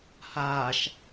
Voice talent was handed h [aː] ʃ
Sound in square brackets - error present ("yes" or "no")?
no